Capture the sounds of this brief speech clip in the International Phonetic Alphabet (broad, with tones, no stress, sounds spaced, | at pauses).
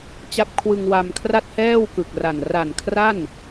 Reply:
t͡ɕ a˦˥ p̚ kʰ w ɯ˧ ŋ w a˧ m kʰ r a˥˩ t̚ h ɛː˥˩ w k ɯ˨˩ k̚ r a˨˩ n r a˨˩ n kʰ r a˥˩ n